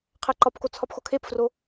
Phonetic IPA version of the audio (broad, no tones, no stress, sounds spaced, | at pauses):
qʰ æ ǃ ɒ p k o t͡sʰ ɒ p x o kʰ e p f r o